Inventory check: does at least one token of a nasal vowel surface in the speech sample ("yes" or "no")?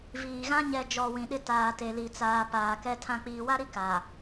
yes